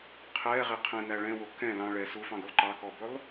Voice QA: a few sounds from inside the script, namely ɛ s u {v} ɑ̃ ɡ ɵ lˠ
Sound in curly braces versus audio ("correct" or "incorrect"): incorrect